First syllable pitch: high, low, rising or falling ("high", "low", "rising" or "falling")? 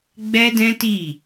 high